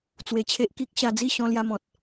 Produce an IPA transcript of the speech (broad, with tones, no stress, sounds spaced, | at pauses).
t͡s w e˧ t͡ɕʰ e˦ ʔ k i˦ k̚ ɕ a˧ d͡z i˥˧ ɕ ɔ̃˧ l j a˧ m ɔ̃˨ t̚